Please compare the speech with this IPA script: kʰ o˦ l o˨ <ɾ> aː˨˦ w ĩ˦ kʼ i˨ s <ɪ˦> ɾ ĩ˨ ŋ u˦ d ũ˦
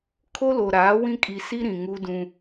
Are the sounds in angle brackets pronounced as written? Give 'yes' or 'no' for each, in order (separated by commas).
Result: yes, no